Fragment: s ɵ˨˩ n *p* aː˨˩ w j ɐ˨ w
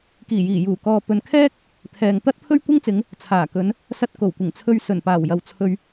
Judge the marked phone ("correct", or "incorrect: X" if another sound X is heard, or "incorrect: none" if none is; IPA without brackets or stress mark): correct